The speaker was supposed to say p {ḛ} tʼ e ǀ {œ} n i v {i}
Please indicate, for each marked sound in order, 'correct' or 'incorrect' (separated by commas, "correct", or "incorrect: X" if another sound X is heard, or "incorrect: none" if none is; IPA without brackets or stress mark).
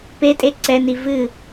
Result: incorrect: e, incorrect: ɛ, incorrect: ɨ